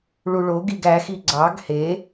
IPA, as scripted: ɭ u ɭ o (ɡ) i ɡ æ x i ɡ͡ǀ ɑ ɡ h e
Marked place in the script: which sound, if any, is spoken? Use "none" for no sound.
ɡ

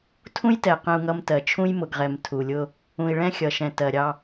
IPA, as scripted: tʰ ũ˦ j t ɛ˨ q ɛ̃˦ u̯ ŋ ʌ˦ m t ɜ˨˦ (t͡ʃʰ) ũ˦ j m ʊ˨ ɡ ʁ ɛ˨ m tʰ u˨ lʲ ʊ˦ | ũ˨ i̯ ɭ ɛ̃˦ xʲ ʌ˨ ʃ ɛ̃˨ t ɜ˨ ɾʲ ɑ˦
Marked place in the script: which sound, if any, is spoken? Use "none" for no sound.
t͡ʃʰ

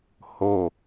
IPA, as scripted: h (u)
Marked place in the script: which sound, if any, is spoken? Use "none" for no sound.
o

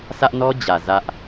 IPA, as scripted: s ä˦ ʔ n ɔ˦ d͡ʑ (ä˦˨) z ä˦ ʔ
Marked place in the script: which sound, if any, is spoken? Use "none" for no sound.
ä˨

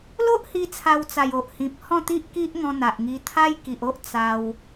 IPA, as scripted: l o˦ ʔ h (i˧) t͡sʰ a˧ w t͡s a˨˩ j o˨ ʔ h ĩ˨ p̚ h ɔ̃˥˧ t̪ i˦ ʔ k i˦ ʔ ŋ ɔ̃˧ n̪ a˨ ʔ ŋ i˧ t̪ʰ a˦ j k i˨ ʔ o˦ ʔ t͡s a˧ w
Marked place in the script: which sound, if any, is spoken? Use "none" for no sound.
i˧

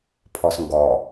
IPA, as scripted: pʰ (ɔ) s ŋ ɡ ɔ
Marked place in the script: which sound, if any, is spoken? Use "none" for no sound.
ɔ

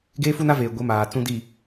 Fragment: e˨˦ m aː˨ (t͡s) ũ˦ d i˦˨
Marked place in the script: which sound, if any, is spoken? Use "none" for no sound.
t͡s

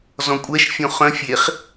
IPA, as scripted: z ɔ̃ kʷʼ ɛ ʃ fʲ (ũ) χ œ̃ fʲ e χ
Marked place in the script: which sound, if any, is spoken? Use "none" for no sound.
õ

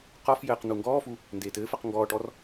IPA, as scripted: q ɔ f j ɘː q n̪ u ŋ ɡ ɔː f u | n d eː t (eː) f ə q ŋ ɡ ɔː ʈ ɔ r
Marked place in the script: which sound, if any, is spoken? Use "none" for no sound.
ɘː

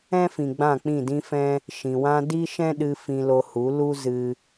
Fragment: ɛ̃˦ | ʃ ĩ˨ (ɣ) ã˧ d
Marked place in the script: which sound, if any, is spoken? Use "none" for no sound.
w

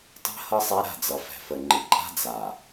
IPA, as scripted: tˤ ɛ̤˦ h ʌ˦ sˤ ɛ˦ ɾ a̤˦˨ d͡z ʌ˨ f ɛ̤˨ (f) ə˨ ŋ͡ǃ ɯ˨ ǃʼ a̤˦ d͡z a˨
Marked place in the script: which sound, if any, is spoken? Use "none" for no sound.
f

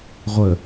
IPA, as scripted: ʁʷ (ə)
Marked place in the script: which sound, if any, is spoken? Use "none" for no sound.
ə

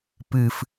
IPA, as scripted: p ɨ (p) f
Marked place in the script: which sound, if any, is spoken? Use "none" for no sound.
none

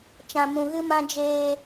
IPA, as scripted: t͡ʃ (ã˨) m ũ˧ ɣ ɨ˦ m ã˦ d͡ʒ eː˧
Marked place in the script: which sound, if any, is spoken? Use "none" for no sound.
ã˧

